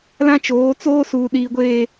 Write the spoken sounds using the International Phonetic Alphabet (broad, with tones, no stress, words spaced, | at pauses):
lã˦t͡ʃoː˨˦t͡soː˦ suː˨ɗiː˨ɡʷeː˨